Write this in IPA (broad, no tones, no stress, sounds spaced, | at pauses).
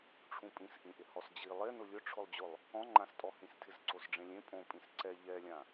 ʈ͡ʂʰ ũ pʼ ĩ s ʔ ĩ ʔ ɪ h ɔ s d͡ʑ i lˠ e n ʊ lʲ ʊ ʈ͡ʂʰ ʊ lˠ d͡ʑ ʊ lˠ | ɔ̃ ŋ͡ǃ ã s tʼ ɔ h ĩ s tʰ ɪ z ǀ o s ɖ͡ʐ ẽ lʲ ẽ pʼ õ pʼ ĩ s ǀ ɛ ʎ ɛ lʲ ã